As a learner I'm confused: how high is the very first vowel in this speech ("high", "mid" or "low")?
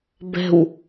mid